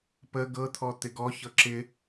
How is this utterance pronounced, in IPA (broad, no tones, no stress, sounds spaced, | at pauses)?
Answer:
p ə ɡ ɤ t̪ʰ ɔ t̪ ɪ ɡ ɔ ç ɤ ǁ ɪ